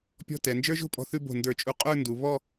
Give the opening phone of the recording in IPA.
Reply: pʲ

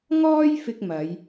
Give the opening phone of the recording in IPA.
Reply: ŋ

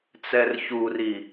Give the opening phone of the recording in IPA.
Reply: t͡s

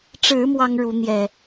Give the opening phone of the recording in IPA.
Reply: ʈ͡ʂ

